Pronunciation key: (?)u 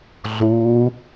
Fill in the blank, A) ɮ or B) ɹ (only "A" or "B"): A